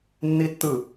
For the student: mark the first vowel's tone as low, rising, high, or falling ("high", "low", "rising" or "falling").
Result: high